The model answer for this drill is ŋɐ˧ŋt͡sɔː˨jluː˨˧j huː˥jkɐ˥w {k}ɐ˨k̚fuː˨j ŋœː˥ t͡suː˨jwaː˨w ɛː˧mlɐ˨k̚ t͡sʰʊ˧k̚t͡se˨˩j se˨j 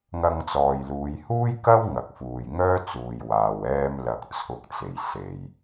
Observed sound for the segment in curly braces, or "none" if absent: ŋ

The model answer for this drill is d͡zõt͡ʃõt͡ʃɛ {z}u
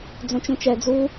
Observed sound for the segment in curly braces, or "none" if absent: d͡z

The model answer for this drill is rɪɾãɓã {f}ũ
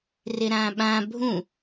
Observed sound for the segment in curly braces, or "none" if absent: bʱ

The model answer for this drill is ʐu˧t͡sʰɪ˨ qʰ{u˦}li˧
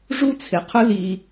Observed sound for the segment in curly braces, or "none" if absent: ʊ˦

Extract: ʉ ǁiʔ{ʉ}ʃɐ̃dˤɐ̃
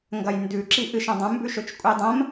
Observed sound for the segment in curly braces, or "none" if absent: ɨ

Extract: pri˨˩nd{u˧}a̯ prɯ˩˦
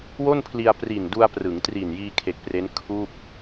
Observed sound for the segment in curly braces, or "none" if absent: u˧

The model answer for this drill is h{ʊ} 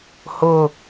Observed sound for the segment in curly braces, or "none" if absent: ʊ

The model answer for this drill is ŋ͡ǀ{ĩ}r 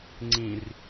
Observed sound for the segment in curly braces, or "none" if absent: ĩ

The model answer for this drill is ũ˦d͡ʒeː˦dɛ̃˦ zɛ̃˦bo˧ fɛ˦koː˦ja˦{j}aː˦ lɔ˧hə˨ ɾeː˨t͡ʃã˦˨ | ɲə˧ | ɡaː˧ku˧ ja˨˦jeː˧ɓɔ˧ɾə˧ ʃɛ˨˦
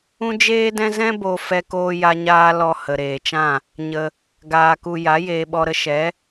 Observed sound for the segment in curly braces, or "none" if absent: ɲ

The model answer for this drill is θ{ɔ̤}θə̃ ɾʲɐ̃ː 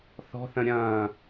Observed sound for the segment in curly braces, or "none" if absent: ɔ̤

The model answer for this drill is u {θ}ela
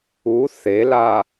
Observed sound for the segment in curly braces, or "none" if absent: θ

